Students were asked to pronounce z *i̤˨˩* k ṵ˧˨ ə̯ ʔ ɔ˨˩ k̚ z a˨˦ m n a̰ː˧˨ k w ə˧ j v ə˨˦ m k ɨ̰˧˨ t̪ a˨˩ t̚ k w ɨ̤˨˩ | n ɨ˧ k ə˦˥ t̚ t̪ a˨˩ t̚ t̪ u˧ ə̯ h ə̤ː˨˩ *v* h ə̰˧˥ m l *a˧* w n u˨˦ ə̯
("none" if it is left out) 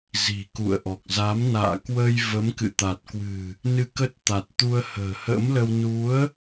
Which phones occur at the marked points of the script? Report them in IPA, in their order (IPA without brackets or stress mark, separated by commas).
i̤˨˩, none, ə˧